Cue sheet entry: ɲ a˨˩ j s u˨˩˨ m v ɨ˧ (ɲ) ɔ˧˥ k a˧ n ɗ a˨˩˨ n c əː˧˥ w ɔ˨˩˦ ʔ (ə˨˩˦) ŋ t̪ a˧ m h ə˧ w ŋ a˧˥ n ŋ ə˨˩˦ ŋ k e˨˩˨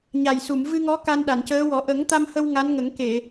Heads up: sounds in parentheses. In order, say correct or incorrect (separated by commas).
incorrect, correct